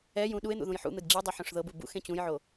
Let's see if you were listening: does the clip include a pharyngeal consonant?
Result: yes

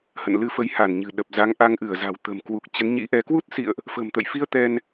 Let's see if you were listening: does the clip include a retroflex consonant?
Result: no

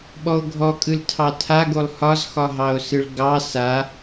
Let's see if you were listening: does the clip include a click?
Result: no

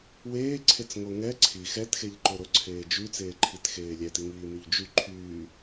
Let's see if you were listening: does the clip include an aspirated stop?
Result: yes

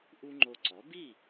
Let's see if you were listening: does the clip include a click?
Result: yes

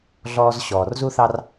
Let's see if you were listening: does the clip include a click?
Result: no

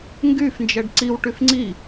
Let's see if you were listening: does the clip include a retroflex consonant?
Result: yes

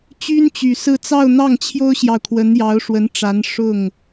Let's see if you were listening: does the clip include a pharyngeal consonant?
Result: no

